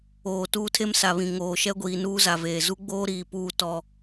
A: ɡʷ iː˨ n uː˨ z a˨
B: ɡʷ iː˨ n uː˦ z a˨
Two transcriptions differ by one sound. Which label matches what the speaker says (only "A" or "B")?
B